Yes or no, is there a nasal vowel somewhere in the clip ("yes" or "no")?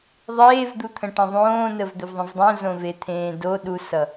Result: yes